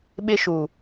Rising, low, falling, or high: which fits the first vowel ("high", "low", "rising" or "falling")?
high